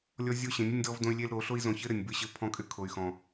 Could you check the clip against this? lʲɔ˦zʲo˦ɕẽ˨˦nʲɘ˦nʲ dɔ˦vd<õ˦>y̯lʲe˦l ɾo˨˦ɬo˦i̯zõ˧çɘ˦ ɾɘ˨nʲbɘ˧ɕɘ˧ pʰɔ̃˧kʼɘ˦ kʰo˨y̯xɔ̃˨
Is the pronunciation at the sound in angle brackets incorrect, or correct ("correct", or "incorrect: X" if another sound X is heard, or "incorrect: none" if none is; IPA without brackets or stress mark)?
correct